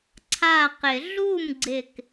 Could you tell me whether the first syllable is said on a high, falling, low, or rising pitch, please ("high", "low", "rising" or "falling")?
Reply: falling